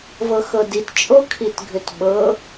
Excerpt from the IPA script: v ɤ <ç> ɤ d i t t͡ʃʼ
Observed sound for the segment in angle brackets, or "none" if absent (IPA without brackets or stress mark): x